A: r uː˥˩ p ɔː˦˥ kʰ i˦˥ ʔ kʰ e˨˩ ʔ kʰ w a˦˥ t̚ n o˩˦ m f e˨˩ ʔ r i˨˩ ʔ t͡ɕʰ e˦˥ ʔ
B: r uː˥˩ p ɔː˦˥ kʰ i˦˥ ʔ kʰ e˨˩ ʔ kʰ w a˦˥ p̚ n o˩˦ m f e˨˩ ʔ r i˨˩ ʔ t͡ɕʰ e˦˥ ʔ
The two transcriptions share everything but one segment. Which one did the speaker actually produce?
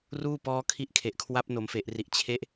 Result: B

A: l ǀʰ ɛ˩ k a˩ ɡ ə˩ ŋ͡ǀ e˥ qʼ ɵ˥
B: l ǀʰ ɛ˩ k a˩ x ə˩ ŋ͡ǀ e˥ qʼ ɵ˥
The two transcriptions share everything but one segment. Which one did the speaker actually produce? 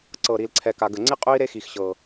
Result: A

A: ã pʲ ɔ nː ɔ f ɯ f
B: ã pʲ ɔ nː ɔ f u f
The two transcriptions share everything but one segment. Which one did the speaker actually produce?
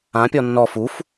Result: B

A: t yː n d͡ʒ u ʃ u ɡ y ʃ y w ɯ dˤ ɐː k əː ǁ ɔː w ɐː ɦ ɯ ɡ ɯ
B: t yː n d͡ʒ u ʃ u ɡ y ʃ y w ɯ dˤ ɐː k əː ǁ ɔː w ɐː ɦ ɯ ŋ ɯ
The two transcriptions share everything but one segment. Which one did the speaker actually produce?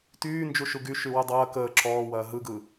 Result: A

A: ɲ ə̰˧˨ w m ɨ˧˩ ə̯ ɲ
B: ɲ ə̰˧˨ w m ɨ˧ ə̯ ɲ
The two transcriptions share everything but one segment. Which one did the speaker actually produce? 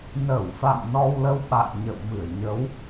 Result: A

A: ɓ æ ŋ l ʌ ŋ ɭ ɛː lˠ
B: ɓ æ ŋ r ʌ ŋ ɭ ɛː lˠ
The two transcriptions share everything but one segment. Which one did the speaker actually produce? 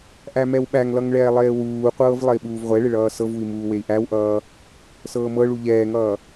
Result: A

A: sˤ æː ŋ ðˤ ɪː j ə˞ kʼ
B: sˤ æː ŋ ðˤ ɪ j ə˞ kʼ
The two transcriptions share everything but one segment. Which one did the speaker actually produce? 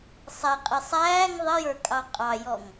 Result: B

